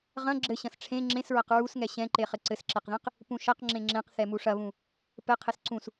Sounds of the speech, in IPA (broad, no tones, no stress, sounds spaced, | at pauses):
ʁ ɐ̃ ɡ͡ǁ ɘ ɕ ɐ̃ s ʈ͡ʂʰ ẽ ŋ͡ǁ ẽ s ɹ ɐ q ɹ u s ŋ ɛ ɕ ɛ̃ ǃ e χ ɘ ǀ ɘ s ǁ e q ð ẽ q | p ũ ʃ ɐ q ŋ͡ǁ ẽ ŋ͡ǁ ẽ q θ ɛ m u ʂ ɐ β ũ | p ɘ qʰ e s ǀ ũ s